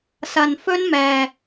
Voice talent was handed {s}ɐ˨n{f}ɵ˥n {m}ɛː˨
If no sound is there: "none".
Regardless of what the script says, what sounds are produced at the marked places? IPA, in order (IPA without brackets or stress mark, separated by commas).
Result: s, f, m